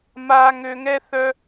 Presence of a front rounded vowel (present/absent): present